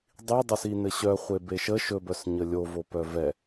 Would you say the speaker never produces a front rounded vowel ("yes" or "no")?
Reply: no